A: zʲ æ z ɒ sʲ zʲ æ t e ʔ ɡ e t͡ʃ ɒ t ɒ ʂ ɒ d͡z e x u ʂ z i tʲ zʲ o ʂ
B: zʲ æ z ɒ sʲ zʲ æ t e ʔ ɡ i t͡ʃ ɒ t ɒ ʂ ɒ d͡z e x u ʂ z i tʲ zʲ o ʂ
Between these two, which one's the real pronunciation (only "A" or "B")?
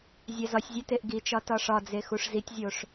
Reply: B